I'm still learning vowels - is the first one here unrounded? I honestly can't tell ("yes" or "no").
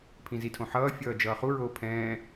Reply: yes